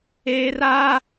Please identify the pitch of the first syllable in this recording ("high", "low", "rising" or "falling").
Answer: high